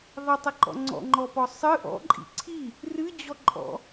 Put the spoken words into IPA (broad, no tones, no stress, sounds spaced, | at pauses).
ðˤ i tˤ ə ǃ ɔ̰ ŋ͡ǀ ɔ̰ ŋ͡ǃ ɔ p ɔ sˤ ɨ ʔ ɔ̰ ǃʼ ḭ ǀʰ i | r ɨ d͡ʑ ɔ ǃʼ ɔ̰